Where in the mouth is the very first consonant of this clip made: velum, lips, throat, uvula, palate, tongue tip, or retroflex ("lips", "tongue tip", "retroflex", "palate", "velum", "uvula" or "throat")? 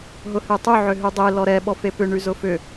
throat